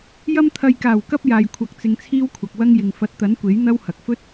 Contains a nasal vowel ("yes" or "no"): no